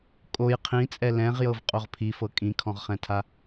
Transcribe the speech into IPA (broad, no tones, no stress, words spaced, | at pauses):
kʼoj qʰĩt͡sʼɛ lɛ̃ʁjɤvqʼoʁ pʰifɤ kʼĩkʰɔ̃ʁχɛ̃tʰa